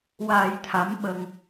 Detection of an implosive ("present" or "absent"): present